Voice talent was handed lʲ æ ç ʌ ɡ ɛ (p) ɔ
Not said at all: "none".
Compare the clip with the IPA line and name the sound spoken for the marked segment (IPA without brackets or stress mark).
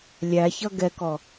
k